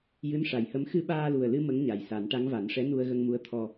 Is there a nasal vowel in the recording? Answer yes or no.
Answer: no